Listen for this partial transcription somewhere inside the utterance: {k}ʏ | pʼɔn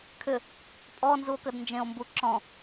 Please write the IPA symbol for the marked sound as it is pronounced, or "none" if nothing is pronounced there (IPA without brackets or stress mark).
kʰ